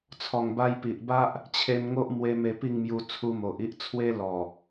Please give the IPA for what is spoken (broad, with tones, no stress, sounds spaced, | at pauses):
t͡sʰ ɔ˨˩ ŋ b a˧ j p i˨ ʔ b a˦ ʔ | t͡ɕʰ e˧ m ŋ o˦ ʔ m w e˧ m e˧ p i˥˧ ŋ m j u˧ t͡sʰ u˧ m o˨ ʔ i˦ ʔ t͡sʰ w e˦ l ɔ˨˩